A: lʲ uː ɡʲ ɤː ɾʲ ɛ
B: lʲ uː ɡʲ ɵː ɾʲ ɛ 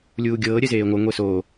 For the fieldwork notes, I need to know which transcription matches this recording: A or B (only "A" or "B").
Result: A